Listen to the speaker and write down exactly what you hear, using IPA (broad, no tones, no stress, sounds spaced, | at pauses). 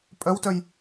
pʼ œ w t œ j